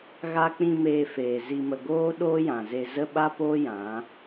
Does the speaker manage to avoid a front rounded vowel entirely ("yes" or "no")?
yes